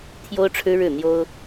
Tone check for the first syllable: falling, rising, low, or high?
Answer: high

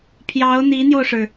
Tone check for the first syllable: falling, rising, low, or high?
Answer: rising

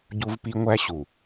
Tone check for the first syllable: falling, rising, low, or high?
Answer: high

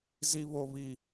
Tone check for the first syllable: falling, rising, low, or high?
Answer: high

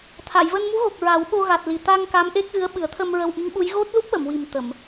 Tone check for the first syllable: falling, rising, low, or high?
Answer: low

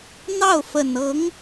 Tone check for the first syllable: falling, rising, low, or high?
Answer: falling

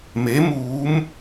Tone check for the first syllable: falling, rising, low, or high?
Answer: rising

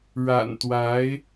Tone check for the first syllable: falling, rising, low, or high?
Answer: low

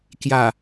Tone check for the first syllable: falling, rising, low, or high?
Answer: low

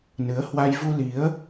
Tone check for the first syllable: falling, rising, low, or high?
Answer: rising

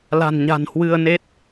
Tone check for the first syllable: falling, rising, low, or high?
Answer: low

